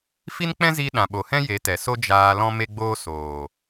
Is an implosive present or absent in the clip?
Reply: present